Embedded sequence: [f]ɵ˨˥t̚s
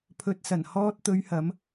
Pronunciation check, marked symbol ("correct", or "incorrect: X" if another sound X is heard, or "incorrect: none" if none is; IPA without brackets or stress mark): incorrect: pʰ